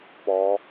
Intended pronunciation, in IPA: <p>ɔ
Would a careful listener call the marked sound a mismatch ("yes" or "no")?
no